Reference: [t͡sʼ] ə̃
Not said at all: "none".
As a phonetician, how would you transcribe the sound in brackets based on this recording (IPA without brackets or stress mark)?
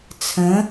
t͡sʰ